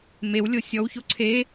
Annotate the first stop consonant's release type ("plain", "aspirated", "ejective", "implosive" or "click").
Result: click